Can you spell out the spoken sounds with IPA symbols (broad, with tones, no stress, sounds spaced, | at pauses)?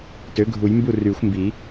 t ø˩˥ ɡʱ u˨˩˦ j m b u˥˩ r yː˨˩˦ xʷ m b i˨˩˦